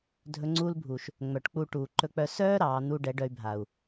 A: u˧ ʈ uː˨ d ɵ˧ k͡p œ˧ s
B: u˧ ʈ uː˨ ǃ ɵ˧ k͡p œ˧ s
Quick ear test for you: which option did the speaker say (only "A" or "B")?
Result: B